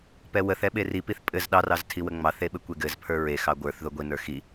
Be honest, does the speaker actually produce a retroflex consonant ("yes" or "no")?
no